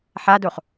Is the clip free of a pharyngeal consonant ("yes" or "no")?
no